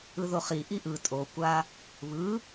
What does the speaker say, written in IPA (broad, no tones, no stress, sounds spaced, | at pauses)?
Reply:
ɯ ð o χ i ʔ i ʔ ɯ tʼ o kʷ a | β ɯ